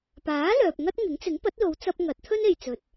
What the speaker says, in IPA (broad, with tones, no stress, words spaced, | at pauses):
paː˨˥ lœː˨p̚ ŋɐ˥t̚ŋɪ˨˥ŋ t͡sɪ˨˥ŋpɐ˨˥t̚lo˨˧wt͡sɐ˧p̚ ŋɐ˨˥t̚ t̪ʰɵ˥ne˨jt͡sɵ˨t̚